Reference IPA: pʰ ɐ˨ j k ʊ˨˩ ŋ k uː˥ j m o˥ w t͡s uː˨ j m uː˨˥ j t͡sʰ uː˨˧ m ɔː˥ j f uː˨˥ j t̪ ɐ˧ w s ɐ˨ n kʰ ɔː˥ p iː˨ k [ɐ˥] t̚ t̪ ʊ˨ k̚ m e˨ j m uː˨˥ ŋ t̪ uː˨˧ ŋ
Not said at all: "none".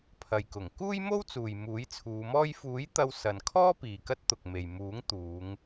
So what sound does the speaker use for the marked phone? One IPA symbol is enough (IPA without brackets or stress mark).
ɐ˥